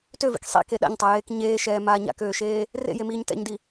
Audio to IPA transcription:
t ø v ḭ k sˤ ḭ k e ɗ a̰ ɲ tˤ a j eː k ɲ eː ʃ ɛː m aː ɲ a̰ k øː ʃ eː | r ḛ j e m iː ɲ t ɛ̰ ɲ d i

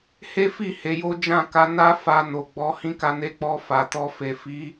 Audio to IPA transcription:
h e˦ f i˦˨ h e˨˦ j o˦ d͡ʒ ã˦˨ k a˧ n a˦ f a˧ n o˨ ɡ͡b ɔ˨˦ h ĩ˦ k a˧ n e˧ k͡p ɔ˧ f a˨ t ɔ˧ f e˨ f i˨˦

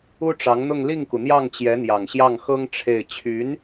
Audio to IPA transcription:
u˥ ʈ͡ʂ ɑ˧˥ ŋ n̪ ʊ˥˧ ŋ l i˥˩ ŋ k u˩ n̪ j ɑ˥˩ ŋ t͡ɕ j ɛ˧˥ n̪ j ɑ˨˩ ŋ ɕ j ɑ˥˩ ŋ x ɤ˥ ŋ ʈ͡ʂʰ e˥˩ ɪ̯ t͡ɕʰ y˧˥ n

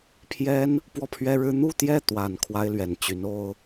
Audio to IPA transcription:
pʰ j ɛ˥ n | p w ɔ˥˩ pʰ ɥ ɛ˥ ɻ ɻ̩˥ n̪ u˥˧ t̪ j ɛ˥˩ t̪ w a˨˩ n kʰ w a˥ ɪ̯ l ɥ ɛ˨˩ n t͡ɕ y˧˥ n o˥ ʊ̯

